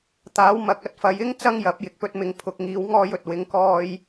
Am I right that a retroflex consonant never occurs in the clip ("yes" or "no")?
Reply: yes